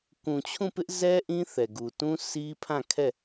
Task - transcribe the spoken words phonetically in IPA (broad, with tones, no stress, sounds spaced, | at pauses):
k ũ˨ t͡ɕʰ ũ˦˨ p ɪ˦ ʔ z ɛ˦ ʔ ĩ˦ θ ɛ˨ ɡ u˨ t ũ˦ s i˦ pʰ ã˦˨ kʰ ɛ˦˨